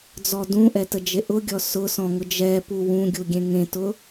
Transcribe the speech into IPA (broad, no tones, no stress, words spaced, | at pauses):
d͡zɔdũʔɛ təd͡ʒeʔʊɡʲɔ sʊsɔ̃ ŋʊd͡ʒɛpu wũɡʲu ɡʲẽŋẽtʊ